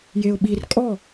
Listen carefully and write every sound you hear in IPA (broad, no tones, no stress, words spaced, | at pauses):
jeʊ̯ɓir kʼɔ